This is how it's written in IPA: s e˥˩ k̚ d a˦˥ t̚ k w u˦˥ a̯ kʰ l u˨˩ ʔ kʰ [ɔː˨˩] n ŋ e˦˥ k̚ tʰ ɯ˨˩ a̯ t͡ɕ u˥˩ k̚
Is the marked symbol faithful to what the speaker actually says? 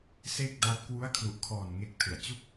yes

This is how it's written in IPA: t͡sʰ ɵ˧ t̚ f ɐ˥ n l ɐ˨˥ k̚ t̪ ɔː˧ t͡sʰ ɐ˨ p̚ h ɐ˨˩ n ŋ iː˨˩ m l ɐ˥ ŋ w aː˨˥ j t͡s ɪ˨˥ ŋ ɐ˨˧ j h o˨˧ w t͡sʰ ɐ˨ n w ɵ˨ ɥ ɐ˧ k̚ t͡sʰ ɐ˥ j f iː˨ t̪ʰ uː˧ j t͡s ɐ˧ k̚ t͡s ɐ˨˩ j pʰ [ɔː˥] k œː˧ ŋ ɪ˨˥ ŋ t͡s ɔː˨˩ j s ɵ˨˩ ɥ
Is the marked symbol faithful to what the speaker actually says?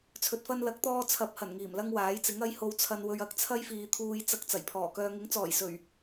no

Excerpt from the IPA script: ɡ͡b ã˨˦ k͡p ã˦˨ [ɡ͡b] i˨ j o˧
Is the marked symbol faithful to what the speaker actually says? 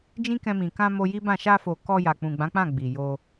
yes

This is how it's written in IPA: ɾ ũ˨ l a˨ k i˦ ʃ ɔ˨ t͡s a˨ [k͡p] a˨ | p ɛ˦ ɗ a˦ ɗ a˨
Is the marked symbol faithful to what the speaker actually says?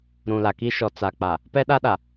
yes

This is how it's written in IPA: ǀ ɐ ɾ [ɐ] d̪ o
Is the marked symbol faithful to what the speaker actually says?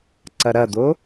yes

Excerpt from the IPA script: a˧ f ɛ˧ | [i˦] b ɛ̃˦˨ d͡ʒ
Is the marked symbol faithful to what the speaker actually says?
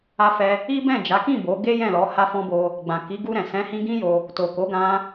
yes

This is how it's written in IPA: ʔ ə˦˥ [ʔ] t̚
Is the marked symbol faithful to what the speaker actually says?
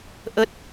no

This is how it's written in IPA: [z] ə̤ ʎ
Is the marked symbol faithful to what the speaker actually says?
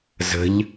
yes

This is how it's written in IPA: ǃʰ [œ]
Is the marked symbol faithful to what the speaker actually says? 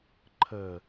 no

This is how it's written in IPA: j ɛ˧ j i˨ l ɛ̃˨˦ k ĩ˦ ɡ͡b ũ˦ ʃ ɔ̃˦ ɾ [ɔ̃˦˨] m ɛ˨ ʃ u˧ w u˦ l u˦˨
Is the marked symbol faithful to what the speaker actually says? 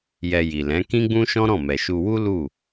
yes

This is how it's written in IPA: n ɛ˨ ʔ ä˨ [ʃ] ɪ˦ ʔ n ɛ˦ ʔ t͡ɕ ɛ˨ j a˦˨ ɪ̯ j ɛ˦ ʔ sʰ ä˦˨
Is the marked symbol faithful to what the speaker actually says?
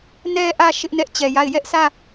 yes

